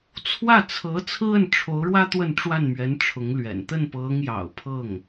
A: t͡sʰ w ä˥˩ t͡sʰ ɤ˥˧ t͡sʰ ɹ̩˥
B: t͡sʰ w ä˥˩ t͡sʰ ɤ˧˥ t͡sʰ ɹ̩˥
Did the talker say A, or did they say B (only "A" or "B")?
B